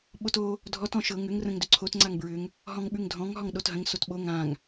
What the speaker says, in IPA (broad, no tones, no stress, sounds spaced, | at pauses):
ɓ o t o | dʱ ɔ t ɔ̃ ʃ ɤ ŋ ʏ ŋ r ə̃ ŋ d ʏ ǀʰ o t ŋ͡ǀ a ŋ b ɹ ʏ ŋ | ɦ ɔ̃ ŋ ɓ ʉ ŋ dʱ ɔ̃ ŋ ɦ ɔ ŋ ɗ o t ɦ ə̃ ŋ s o t ɓ o ŋ ã ŋ